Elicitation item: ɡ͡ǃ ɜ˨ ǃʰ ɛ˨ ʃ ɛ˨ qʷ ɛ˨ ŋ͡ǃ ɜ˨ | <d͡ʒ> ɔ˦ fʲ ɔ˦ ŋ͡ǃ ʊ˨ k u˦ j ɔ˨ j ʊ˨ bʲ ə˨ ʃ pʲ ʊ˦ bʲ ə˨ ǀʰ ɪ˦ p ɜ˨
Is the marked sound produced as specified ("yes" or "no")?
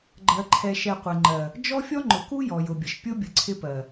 yes